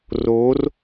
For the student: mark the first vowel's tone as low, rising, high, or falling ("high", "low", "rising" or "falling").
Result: rising